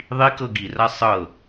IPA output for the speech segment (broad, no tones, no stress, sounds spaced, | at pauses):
ðˤ i k ɤ ɡ i r a sˤ ɤ